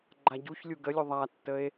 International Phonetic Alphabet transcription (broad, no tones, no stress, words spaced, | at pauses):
ɡ͡ǃaɟuçlʲu ɡəlʲu ðˤatːəe̯